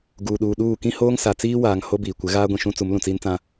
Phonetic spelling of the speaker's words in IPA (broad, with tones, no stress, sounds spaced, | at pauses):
ɡ uː˨ ɗ uː˨ ɗ uː˦˨ k ĩ˦ h oː˦ ŋ s a˨ t͡s iː˦ w aː˨ ŋ h o˦ b iː˨ kʷ ɪ˨˦ ɣ aː˦ ɡʷ ĩ˨ ʃ ũ˦ t͡s u˨˦ m l ũ˨ t͡s iː˦ n t͡s ã˦